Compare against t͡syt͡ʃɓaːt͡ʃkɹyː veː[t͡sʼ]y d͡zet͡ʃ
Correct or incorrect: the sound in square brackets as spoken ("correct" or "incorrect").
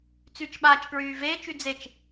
incorrect